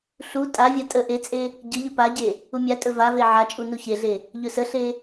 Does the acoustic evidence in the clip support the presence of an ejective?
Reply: yes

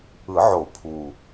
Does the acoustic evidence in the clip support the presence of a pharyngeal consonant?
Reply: yes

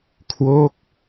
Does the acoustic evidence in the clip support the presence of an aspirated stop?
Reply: yes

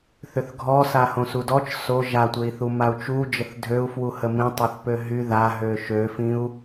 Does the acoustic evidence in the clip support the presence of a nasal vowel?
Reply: yes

